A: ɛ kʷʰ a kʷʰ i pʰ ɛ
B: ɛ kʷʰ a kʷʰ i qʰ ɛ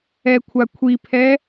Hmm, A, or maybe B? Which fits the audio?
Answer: A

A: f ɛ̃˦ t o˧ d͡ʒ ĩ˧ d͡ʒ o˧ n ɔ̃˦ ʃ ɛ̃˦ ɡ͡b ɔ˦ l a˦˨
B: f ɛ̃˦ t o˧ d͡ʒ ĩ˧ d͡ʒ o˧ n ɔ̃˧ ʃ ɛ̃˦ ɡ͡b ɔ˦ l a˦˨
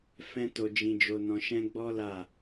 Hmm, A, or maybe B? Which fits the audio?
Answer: B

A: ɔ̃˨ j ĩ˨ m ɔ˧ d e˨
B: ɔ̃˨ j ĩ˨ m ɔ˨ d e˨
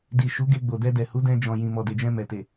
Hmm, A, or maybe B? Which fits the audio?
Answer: B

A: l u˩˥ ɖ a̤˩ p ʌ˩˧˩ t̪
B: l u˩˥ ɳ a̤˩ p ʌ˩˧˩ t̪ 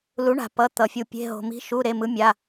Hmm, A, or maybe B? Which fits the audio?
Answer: B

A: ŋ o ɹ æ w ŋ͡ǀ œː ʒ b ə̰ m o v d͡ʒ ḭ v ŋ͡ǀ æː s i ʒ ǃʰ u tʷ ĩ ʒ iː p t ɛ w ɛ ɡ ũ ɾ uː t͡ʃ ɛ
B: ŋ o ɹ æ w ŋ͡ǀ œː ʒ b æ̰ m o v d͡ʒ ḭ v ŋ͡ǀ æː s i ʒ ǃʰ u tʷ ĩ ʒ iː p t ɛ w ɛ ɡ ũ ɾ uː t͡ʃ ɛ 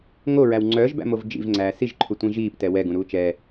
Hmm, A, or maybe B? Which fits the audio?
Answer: B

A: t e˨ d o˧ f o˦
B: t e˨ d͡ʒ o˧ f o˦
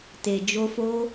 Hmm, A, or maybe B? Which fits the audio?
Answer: B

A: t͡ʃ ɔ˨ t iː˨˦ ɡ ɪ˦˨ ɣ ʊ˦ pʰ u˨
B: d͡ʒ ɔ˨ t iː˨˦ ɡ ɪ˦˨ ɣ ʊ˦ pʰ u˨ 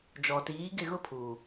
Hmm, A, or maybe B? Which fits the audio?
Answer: B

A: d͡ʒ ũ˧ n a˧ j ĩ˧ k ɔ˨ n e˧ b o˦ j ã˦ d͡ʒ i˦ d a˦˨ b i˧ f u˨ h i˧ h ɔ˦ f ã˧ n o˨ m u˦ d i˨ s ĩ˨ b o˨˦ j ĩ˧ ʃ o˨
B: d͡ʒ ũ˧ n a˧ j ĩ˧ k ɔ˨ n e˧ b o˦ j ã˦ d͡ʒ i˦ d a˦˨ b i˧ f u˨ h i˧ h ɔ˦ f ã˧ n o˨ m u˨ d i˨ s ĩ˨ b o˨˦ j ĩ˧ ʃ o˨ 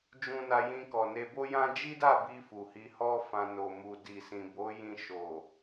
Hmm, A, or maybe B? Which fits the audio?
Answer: B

